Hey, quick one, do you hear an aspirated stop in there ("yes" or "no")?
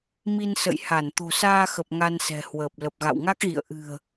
no